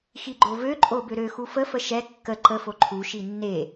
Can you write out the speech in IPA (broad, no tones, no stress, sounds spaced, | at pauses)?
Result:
x i ɡ͡ǃ o v ø ǃʼ o b ø ɾ ø x u f ə f ə ʃ ɛ kː ə ǃ ə f o ǃʰ u ʃ i nː e